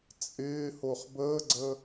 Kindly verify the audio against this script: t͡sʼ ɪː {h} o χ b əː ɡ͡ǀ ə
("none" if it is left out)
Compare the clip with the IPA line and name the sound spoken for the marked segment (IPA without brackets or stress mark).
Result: h